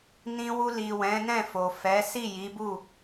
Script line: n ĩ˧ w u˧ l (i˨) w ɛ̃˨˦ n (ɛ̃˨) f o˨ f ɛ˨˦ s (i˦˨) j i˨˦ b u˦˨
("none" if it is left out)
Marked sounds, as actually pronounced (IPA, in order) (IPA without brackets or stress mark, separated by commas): i˨, ɛ̃˦˨, i˦˨